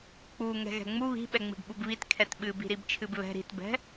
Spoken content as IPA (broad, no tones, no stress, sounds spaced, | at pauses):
k͡p u ŋ ɛ̤ ɣ ɛ̤ ŋ͡m u β i̤ ɓ ɛ ŋ͡m i̤ ɖ ɓ u b β i t kʰ ɛ t ɓ ɨ b i̤ ɾ i b t͡ʃʰ ɨ b β ɛ̤ ɾ i̤ t b ɛ̤